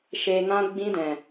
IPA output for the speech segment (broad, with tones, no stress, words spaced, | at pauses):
ʃe˨ ŋã˧ɡ͡bĩ˧dɛ̃˨